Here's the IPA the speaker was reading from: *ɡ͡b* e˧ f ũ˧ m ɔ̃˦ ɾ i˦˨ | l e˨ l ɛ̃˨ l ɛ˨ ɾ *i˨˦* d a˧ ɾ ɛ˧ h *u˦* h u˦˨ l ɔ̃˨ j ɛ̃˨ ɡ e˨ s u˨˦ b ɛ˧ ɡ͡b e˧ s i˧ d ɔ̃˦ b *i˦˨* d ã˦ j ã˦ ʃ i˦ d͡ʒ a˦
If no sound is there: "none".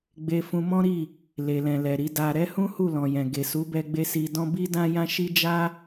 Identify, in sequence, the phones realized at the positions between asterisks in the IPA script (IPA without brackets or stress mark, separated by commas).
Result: ɡ͡b, i˨˦, ũ˦, i˦